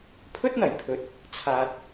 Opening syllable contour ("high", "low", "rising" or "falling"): high